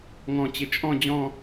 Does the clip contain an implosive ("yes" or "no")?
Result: no